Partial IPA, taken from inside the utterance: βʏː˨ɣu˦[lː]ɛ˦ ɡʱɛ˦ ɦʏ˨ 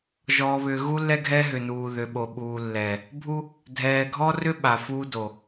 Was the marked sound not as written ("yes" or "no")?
no